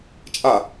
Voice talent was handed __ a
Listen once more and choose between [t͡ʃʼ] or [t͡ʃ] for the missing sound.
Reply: t͡ʃʼ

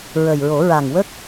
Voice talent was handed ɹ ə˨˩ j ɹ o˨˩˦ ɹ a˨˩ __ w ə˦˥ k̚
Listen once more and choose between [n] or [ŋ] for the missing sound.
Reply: ŋ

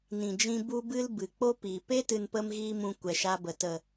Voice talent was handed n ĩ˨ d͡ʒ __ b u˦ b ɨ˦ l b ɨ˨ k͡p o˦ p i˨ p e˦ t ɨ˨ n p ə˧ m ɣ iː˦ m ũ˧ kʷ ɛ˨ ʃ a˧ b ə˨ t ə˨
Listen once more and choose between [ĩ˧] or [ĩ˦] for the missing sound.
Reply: ĩ˧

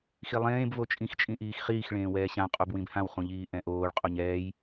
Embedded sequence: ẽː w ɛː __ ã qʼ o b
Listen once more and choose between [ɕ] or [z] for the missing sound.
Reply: ɕ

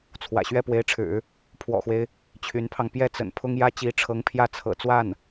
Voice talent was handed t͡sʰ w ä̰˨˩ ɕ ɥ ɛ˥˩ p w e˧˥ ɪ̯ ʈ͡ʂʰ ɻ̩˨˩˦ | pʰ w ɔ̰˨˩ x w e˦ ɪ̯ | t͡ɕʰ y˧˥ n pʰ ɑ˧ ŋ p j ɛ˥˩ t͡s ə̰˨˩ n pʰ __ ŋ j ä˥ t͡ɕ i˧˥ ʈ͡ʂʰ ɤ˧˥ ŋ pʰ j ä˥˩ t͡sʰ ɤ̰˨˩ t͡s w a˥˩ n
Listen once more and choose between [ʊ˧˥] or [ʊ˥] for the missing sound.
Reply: ʊ˥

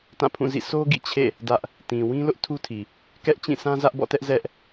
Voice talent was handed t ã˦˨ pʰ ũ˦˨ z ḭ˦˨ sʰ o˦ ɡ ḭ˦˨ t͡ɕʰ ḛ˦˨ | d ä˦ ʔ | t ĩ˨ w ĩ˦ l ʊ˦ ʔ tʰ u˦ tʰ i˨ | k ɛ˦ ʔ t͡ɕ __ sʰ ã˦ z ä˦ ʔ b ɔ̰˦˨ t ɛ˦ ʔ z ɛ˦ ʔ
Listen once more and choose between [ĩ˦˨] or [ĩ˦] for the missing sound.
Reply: ĩ˦˨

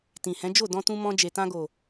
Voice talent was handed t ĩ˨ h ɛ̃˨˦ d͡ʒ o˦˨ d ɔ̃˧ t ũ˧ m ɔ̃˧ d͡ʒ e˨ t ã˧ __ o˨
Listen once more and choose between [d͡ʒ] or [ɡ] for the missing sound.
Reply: ɡ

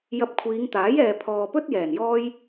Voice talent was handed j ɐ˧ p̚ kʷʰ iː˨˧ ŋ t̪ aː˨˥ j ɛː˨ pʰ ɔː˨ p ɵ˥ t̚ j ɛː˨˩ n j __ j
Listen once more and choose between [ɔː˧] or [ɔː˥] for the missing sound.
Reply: ɔː˥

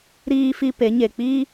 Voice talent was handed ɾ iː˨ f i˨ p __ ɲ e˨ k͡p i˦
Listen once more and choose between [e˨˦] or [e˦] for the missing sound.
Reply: e˨˦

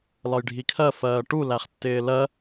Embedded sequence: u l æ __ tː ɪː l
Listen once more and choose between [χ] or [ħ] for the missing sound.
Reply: χ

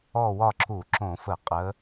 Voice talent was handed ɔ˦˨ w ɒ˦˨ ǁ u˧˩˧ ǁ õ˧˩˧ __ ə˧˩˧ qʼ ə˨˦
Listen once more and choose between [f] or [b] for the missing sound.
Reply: f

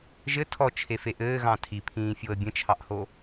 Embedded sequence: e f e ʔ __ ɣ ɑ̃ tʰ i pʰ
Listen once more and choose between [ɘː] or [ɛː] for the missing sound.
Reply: ɘː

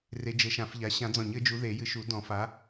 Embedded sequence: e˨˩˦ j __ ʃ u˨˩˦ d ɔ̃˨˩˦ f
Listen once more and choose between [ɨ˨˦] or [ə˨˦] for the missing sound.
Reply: ɨ˨˦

